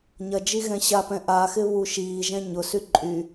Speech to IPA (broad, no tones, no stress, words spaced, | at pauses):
ɲɐd͡ʒi ɣɛ̃ɕapɛ̃ ʔaxɪ βuʃiːʒɛ̃ ɲʊsy ǃʼy